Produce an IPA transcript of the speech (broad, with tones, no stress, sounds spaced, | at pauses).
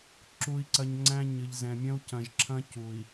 ǁ u˨ i̯ ǀ ɐ˨ ɲ ŋ͡ǀ æ̃˦ ɲ ɨ˨ ʎ z ɛ̃˨ mʲ ɐ̃˦ u̯ c ɐ̃˨ ʒ ǁʰ ɐ̃˦ c u˨ i̯